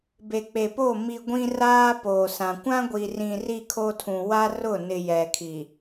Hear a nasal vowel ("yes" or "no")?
yes